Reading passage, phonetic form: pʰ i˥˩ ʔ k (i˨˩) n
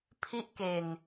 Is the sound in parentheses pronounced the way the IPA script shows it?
no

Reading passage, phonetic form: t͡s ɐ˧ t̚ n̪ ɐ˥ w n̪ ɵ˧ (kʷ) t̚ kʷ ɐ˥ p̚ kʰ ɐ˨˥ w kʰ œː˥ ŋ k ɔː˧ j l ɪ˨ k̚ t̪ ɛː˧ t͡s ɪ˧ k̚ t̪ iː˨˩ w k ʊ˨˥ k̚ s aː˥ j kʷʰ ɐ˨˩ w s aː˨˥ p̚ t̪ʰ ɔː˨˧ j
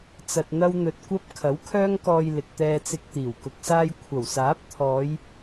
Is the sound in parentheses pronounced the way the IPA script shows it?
no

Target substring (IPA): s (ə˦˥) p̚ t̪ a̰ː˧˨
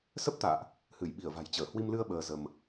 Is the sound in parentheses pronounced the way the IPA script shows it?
yes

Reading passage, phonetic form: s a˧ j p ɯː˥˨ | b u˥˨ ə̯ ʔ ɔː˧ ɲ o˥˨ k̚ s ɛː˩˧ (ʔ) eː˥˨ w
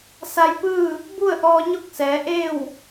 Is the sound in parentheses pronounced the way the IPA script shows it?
yes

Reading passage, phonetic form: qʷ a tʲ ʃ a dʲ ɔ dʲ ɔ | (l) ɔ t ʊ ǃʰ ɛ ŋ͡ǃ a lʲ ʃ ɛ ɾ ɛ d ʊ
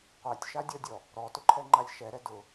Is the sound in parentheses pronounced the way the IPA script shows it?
no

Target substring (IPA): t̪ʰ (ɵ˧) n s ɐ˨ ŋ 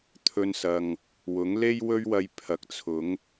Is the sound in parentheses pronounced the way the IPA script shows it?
yes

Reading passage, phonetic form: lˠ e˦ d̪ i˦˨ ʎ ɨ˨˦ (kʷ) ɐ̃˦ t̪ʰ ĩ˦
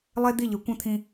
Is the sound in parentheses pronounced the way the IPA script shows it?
yes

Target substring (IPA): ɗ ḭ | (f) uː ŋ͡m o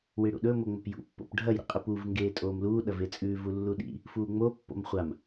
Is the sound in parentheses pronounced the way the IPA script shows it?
yes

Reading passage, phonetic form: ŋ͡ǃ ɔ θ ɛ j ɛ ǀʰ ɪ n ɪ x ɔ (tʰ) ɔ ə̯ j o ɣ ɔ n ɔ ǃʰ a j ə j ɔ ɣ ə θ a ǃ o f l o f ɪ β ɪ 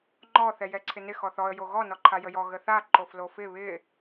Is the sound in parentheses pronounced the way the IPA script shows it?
no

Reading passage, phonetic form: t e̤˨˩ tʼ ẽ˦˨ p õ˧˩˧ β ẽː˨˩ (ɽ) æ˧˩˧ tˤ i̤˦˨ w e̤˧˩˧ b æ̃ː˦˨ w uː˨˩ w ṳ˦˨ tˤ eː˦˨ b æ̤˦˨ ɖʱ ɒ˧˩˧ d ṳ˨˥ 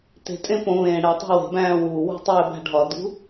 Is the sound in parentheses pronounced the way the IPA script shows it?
yes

